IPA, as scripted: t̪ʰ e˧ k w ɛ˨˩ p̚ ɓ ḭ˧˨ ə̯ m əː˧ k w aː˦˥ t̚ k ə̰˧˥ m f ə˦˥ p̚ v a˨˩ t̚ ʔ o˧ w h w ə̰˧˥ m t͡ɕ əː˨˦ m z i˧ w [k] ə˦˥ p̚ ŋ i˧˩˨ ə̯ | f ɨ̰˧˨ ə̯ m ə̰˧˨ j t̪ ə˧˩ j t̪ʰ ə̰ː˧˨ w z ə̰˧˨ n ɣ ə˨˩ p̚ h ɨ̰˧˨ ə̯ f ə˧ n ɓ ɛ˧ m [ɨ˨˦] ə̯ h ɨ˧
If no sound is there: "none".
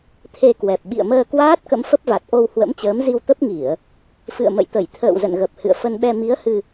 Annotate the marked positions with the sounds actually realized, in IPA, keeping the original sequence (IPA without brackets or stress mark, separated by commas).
t̪, i˨˦